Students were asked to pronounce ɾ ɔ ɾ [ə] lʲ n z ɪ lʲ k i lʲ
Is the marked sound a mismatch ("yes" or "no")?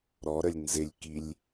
no